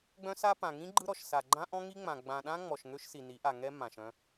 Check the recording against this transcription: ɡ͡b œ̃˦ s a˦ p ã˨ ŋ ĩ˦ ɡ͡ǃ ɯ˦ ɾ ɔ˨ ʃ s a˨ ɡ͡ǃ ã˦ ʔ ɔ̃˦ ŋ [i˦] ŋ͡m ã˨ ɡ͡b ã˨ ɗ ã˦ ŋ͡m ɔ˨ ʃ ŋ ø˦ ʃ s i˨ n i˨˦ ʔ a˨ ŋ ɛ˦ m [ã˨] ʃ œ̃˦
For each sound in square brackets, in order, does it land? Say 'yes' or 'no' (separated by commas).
yes, yes